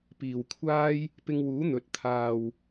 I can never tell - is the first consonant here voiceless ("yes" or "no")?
yes